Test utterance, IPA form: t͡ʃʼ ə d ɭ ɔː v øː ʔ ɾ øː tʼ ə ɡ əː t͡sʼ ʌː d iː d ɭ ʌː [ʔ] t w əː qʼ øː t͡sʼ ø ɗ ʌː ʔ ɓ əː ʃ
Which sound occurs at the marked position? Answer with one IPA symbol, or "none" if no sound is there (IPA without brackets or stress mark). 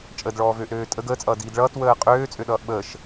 none